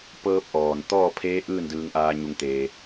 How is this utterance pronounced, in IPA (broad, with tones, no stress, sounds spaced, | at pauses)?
p ɤː˧ p̚ ʔ ɔː˩ n t̪ ɔː˥˨ pʰ eː˧˥ ʔ ɯː˥˨ n d ɯː˧ ŋ ʔ aː˧ ɲ u˧ ŋ t̪ eː˧